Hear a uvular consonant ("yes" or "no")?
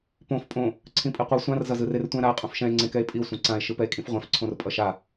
yes